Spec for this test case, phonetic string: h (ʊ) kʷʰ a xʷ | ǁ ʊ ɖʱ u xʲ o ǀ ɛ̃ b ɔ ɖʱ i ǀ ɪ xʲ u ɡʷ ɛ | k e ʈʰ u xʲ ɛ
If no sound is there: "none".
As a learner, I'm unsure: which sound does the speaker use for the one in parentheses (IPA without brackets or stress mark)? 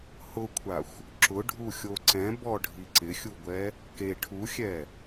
ʊ